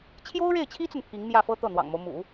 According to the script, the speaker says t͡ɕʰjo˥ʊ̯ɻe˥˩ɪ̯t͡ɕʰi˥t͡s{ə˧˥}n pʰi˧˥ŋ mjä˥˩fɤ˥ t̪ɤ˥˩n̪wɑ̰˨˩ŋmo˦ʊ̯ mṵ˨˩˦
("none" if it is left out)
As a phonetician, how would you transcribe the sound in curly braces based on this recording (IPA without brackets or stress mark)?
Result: ə˨